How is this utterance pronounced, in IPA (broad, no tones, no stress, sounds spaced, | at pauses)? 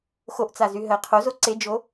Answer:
x o ʔ t͡s a z y ɦ ɜ qʰ o z o ǀ e d͡ʒ o